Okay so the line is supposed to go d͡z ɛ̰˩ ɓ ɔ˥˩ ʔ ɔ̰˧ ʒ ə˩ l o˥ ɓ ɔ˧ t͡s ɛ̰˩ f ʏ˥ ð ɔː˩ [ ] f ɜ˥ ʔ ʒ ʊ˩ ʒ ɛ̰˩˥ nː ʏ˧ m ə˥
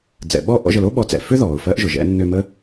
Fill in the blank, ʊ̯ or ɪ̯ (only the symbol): ʊ̯